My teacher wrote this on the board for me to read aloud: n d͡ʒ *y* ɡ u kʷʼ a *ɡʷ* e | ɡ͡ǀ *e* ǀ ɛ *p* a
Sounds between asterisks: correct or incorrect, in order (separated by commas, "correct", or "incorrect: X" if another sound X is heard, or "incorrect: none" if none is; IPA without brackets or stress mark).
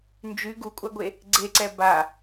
correct, correct, correct, incorrect: b